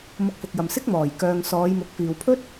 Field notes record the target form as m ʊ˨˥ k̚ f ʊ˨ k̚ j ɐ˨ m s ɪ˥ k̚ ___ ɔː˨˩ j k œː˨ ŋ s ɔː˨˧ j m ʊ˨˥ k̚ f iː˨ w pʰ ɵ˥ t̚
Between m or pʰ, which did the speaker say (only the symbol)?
m